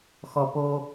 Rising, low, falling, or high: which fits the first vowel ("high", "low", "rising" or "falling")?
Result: low